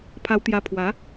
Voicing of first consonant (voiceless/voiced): voiceless